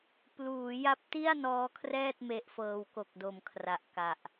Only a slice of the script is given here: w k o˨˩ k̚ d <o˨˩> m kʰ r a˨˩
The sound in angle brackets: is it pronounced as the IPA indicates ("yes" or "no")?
yes